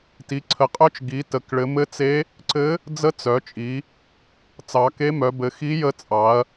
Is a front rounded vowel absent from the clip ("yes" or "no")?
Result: no